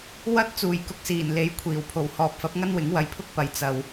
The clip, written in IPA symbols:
w ɐ˥ t̚ t͡s uː˨˩ j k ʊ˨ k̚ s iː˨˩ n l e˨˧ j kʷʰ iː˨˩ w pʰ o˨˩ w h ɔː˨ p̚ f ɐ˨˥ p̚ ŋ ɐ˥ n w ɪ˨˥ ŋ w ɐ˧ j pʰ ʊ˥ k̚ p ɐ˨ j t͡s ɐ˨ w

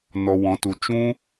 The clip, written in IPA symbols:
n ɔ˧ w ɔ̃˨˦ t u˨ t͡ʃ ũ˦

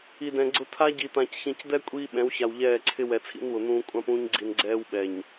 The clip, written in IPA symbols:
i˨ d ɛ̃˨ ɡ͡ǀ ʊ˦ t̪ʰ a˦ ɟ i˨ t̪ ã˨ c ç ĩ˨ c d̪ ɛ˦ kʷʼ iː˦ ɓ ɛ̃˨˦ w ç a˨ w ʎ ɛː˦˨ ǀʰ ɪ˦ w ɛ˨ t͡sʰ ḭ˦ n w ʊ˨ n̪ ũː˦ kʷʼ ã˦ p ũː˦ ɲ ɡ͡ǀ i˨ n ɡ͡ǀ ɛː˦ w ɓ ɛ˨ ɲ

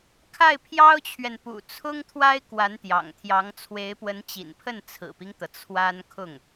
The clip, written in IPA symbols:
kʰ a˥˩ ɪ̯ pʰ j ɑ˥ ʊ̯ t͡ɕʰ ɥ ɛ˨ n p ṵ˨˩ t͡sʰ ʊ˥ ŋ t̪ʰ w a˥ ɪ̯ k w a˧˥ n t̪ j ɑ̰˨˩ ŋ t̪ʰ j ɑ˧˥ ŋ t͡sʰ w e˧˥ ɪ̯ p w ə˧˥ n t͡ɕ ḭ˨˩ n pʰ ə˥˩ n t͡sʰ ɹ̩˨˩ p i˦ ŋ t̪ ɤ˩ t͡sʰ w a˥ n kʰ ʊ˥˩ ŋ

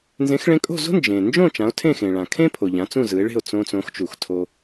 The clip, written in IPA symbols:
n z ẽ˩˥ x ɭ ẽ˧ kʼ o̤˥˩ z o̤˥ n d͡ʒ ẽ˩ n d͡ʒ õ˥˩ t͡ʃ ã˩˥ o̯ tʰ ẽ˥˩ x ẽ˩ ɭ ã˩ kʰ ẽ˥ pʰ o˩ ʎ ã˩˥ t͡s ũ˥˩ z ɯ˩˥ e̯ ɭ e̤˥˩ o̯ t͡s õ˧ t͡s õ˩˥ x t͡ʃ u˩ x tʰ o˧

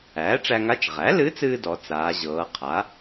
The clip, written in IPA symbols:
æː˩˥ ʈ͡ʂ æ˧ ŋ a˧˥ t͡ʃ ʁ æ˩˥ l ɨ˧˥ t͡s ɨː˧ d ɔ˩˧ t͡s aː˩˧ ʑ ɤː˩˧ qʰ a˩˥

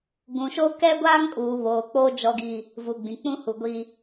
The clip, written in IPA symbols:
ɡ ũ˨ ʃ o˦ k ɛ˦ ɡʷ aː˦ ŋ kʼ uː˨ β oː˨ k͡p o˦ d͡ʒ ɔ˦ ɡ i˦ | v u˨ ɡ͡b ĩ˨ k͡p ũ˦ h u˨ ɡʷ i˦

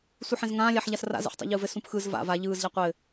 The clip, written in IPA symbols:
sʷ ɯ ħ ɛ̃ z ŋ ãː lʲ a ħ ʎ a s r a̰ z ɛ̰ ħ tˤ a̰ ʎ ɯː v ɘ s ũ p x ɯ z v a̰ v a ʎ ɯː z ʎ a qʷ ɘ

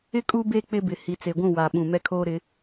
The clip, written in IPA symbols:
ɪ˦ kʼ u˦ b e˦ k͡p ɪ˦ b ɪ˨ h i˨ t͡s e˨ ɡʷ ũ˦˨ w a˨ ɓ ũ˨ m ɛ˦ kʰ oː˦ ɾ ɪ˨˦

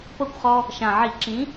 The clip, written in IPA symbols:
p ɤ˥˩ kʷ χ ɔ˦ | ʃ ã˨˩ ʕ i˧˩˧ ǁ ĩ˨˥

